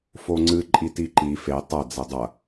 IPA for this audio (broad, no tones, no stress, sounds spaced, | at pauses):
f o ŋ͡ǀ ɨ ǃʼ i t i ǃ i f e tˤ ɐ d͡z ɛ dˤ ɐ